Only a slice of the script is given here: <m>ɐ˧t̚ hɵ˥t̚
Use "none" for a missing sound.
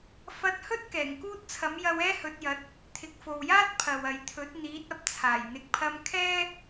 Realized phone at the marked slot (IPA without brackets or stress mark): f